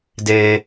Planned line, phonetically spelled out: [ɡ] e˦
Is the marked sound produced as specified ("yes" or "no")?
no